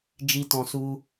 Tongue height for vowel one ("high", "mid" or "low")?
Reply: high